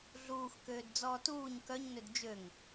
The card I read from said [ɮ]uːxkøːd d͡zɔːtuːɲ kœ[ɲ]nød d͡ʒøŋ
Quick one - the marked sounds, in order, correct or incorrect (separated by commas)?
correct, correct